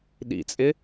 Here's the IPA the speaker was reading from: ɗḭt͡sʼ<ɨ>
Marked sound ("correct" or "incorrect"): incorrect